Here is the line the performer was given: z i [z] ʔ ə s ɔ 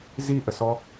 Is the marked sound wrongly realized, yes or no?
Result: yes